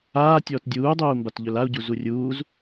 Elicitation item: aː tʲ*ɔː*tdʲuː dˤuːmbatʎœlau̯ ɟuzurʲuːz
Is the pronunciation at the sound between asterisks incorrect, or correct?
correct